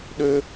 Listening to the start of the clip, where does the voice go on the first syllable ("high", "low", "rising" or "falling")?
high